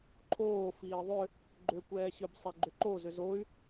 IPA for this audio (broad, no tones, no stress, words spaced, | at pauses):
ǃʰoː fiːðˤʏ | ɡ͡ǃʏːkʷɛːɕʏb sˤɛɡ͡ǃʏǃo zʏzoy̯